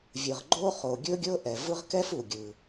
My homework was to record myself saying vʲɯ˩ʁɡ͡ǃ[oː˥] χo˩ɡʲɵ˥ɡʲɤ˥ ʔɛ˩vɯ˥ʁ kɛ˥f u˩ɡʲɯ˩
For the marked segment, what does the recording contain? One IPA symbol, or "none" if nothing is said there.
o˥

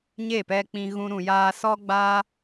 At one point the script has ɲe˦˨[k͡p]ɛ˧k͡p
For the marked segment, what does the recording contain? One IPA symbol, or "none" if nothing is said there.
p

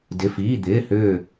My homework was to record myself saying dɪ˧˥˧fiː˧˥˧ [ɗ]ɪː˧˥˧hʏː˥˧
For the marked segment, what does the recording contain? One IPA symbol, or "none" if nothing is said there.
d̪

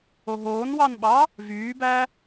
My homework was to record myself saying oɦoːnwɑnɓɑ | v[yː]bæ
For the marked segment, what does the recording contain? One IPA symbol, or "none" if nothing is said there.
yː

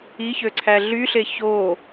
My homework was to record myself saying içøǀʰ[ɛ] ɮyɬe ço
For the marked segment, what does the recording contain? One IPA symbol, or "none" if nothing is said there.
æ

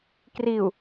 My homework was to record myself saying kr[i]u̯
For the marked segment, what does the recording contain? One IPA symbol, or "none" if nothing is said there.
i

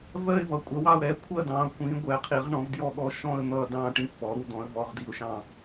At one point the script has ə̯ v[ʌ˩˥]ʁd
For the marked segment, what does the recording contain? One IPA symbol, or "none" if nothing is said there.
ɔ˩˥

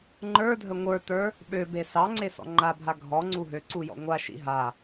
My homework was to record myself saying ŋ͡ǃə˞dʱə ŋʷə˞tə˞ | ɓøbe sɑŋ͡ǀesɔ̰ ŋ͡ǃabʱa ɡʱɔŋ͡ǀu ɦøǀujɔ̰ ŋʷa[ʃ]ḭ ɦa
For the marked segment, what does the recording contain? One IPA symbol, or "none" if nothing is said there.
ʃ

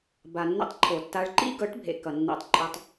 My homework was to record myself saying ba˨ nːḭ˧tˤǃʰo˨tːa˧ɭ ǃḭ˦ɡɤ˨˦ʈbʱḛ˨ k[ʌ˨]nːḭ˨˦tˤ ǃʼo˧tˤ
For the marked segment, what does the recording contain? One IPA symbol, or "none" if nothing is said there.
ʌ˨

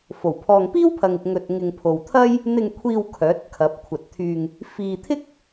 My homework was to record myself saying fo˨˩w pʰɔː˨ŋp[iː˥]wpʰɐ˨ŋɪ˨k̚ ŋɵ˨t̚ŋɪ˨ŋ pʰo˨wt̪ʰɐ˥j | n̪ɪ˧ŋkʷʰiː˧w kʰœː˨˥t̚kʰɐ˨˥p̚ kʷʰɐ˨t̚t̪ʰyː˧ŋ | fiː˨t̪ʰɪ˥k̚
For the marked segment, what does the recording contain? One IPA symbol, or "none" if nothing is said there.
iː˥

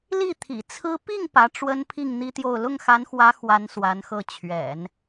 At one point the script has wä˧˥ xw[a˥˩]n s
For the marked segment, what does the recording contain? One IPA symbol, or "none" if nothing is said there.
a˧˥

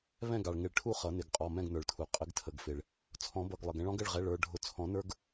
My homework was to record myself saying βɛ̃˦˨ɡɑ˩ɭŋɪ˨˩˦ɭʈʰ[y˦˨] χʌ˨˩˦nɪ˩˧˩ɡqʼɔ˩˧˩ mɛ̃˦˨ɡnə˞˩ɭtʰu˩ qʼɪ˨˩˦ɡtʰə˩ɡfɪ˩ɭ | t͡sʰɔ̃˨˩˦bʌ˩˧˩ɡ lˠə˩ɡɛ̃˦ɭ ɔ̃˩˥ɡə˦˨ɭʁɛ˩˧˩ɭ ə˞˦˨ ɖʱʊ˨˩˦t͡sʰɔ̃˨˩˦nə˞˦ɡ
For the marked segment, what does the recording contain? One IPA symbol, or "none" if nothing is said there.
u˦˨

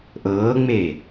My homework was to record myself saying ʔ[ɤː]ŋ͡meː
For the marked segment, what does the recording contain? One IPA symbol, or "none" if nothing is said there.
ɤː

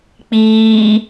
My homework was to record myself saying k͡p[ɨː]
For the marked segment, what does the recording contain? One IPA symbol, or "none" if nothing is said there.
iː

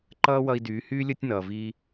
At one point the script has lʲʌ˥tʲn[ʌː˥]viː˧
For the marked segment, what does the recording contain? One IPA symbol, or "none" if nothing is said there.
ʌː˩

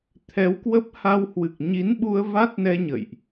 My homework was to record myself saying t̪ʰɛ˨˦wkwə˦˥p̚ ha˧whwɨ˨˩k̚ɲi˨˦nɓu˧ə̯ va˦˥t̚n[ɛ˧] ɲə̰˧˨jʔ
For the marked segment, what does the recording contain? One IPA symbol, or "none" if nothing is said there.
ɛ˧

